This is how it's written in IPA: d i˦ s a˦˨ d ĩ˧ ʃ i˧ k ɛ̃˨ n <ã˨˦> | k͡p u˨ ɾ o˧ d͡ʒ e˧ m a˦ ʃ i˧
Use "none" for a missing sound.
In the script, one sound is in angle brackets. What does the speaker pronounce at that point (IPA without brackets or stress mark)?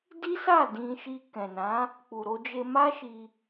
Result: ã˨˦